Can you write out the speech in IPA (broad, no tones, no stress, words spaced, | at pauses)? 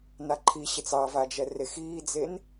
naǃʰiɕet͡s ɑvad͡ʒɛ rexiːd͡zen